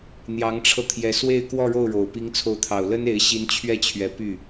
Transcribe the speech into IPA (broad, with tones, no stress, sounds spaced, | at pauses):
n̪ j ɑ˧˥ ŋ ʈ͡ʂʰ ɤ˧ t̪ʰ j ɛ˧˥ s w e˥˧ ɪ̯ k w ɔ˥˧ ɻ o˥˩ ʊ̯ ɻ o˨˩ ʊ̯ p i˧˥ ŋ t͡sʰ o˧˥ ʊ̯ t̪ʰ ɑ˨˩ ʊ̯ l ə˥ n e˧˥ ɪ̯ ɕ i˧˥ n t͡ɕʰ ɥ ɛ˥˩ t͡ɕʰ ɥ ɛ˧˥ p y˥˩